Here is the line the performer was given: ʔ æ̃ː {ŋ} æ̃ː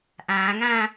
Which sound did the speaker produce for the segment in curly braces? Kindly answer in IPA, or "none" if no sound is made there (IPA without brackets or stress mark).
ŋ